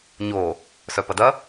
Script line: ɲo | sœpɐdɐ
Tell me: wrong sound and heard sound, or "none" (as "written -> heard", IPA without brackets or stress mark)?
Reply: none